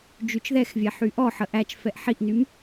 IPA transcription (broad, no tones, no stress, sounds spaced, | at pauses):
d͡ʒ y t͡ʃ ð ɛ x vʲ ɛ ħ y ʔ ɔ ħ ə ʔ æ t͡ʃ f ɛ ʔ ħ i ʔ n y m